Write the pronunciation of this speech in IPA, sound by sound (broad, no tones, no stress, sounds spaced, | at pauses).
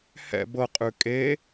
h ɛ̰ b ɤ qʼ ʉ kʼ e